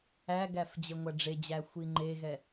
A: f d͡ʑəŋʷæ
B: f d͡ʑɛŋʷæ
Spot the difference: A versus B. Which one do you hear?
A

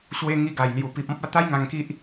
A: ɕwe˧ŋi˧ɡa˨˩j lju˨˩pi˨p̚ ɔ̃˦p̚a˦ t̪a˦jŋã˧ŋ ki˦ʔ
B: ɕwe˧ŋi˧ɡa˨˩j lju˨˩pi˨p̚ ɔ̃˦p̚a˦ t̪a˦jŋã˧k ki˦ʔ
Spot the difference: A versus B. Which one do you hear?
A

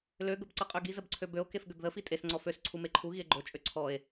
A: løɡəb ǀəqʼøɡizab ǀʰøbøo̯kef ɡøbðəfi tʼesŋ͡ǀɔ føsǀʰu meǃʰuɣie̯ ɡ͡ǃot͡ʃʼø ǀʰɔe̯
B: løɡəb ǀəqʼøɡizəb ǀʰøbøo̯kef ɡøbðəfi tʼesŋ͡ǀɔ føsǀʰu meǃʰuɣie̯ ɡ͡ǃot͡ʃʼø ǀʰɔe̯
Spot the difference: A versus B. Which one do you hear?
B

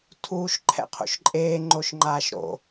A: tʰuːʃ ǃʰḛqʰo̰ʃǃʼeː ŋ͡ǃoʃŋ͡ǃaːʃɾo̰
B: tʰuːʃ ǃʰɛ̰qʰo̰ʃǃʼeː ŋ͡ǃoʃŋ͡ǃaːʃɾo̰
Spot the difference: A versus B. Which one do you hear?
B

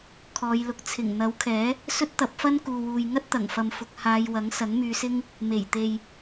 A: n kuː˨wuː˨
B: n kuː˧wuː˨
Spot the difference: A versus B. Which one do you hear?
A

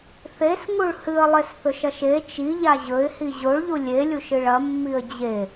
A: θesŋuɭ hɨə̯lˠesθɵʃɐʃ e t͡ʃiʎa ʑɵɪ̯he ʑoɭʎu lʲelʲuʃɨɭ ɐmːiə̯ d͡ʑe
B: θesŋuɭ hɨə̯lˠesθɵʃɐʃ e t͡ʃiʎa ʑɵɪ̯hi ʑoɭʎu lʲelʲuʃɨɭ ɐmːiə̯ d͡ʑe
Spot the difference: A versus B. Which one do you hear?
B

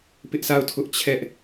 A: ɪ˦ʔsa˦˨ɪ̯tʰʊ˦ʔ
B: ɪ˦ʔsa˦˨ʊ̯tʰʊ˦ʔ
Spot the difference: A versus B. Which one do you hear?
B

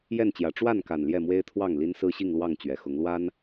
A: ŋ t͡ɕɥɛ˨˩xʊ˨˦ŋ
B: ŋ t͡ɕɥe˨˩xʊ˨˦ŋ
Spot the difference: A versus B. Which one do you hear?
A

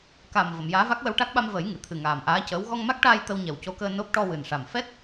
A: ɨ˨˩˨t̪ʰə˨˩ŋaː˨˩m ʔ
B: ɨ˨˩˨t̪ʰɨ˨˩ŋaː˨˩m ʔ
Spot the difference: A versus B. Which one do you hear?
B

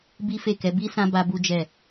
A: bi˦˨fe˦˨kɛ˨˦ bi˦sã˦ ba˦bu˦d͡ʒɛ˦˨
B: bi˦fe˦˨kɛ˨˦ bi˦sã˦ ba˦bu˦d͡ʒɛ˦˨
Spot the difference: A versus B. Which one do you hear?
B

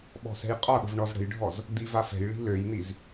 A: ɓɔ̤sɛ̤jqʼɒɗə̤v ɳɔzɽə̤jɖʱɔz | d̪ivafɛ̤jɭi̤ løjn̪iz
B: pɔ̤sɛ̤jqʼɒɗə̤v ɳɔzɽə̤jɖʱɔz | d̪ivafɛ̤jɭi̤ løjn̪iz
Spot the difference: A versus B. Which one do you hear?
A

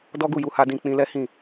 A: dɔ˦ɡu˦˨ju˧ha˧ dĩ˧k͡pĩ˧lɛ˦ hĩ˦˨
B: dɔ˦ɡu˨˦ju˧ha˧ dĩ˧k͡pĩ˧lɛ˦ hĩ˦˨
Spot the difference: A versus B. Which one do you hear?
A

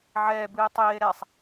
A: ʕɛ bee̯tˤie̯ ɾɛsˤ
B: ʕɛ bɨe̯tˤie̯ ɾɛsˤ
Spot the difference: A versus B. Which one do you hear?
B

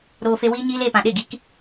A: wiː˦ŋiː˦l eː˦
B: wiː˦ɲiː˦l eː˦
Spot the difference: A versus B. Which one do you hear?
B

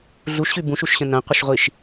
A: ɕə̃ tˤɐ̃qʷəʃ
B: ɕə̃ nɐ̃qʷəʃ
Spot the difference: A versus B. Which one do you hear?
B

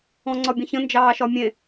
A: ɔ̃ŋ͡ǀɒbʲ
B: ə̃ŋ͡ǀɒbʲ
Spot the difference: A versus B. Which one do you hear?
A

